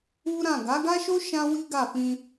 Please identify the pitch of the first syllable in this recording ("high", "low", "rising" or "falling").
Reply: high